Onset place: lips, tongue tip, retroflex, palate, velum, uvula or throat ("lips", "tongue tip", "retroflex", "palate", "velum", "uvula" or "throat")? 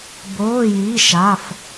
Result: lips